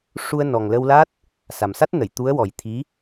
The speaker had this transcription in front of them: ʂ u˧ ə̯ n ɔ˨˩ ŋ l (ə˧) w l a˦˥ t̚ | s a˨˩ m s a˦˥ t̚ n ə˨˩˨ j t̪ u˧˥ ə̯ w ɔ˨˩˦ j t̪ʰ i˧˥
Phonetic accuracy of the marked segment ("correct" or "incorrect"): correct